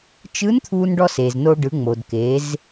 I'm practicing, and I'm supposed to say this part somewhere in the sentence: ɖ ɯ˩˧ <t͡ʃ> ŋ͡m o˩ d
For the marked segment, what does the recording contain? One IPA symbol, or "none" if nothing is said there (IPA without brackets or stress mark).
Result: none